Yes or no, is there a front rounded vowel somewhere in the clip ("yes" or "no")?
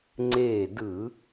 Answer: no